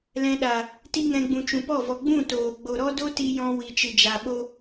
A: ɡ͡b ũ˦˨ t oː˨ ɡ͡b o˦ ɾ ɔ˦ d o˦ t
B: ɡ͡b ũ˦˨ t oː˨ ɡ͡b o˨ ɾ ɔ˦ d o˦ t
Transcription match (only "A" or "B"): B